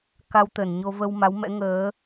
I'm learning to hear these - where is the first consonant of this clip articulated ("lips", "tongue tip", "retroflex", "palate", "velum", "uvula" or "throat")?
velum